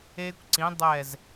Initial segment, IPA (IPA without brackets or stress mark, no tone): e